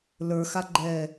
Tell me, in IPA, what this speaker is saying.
l ə˞ x a ɡ͡ǃ ɛː

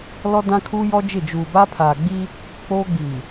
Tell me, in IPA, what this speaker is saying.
l ɔ˦ d ã˦ kʰ uː˦ j ɔ˦ d͡ʒ ɪ˦˨ d͡ʒ uː˨ b a˦ pʰ aː˨ ɡ͡b i˦ | k͡p oː˦ ɡ͡b i˨

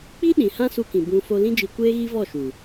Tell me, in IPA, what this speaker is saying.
k͡p i˦ ɗ ĩ˧ h ã˦ s u˧ k ĩ˨ b ũ˧ f o˧ l ĩ˦ d͡ʒ i˧ kʷ eː˦ ɣ i˦ v ɔ˦˨ ʃ u˨

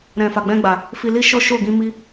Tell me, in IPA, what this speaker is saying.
ɾ ɛ̃˨ f a˨ ɡ͡b ɛ̃˧ ɡ͡b a˨ | f i˧ l i˦ ʃ ɔ˦ ʃ o˦˨ ɡ ĩ˧ m i˦

